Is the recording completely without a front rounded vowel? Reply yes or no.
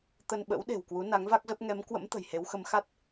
yes